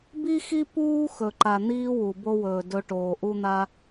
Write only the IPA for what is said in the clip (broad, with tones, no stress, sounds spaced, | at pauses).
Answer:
b i˥ x i˥ p uː˥ x ɵ˨ ǃ a˨ n̪ iː˥ w u˩ b o˦ w ɵː˩ d ɵ˦ ʈ oː˩ ʔ u˦ n̪ a˦